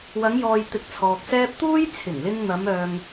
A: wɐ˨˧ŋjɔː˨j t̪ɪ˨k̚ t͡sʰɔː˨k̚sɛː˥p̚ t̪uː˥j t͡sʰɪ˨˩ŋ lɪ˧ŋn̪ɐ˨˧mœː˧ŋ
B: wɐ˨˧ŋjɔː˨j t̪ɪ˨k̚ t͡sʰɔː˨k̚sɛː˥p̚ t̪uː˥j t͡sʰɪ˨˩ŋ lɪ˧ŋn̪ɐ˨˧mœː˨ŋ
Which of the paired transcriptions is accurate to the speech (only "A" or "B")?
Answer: B